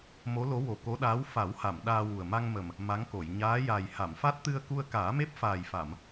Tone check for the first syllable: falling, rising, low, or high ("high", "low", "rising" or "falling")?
rising